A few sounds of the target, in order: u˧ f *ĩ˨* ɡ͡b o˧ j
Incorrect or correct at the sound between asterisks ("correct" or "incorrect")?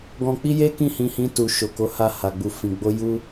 correct